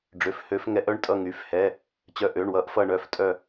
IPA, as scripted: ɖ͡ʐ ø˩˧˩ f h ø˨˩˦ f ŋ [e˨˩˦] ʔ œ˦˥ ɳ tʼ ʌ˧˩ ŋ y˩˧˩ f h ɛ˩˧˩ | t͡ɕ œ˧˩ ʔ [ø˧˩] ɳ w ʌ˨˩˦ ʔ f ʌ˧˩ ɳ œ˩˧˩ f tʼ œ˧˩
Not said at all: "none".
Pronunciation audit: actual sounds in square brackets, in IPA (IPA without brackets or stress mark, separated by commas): ɛ˨˩˦, ø˩˧˩